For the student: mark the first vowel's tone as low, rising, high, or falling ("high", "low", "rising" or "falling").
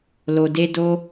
low